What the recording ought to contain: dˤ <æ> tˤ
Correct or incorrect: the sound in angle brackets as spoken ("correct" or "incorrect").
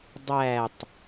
correct